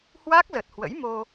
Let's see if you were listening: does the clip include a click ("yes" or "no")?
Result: no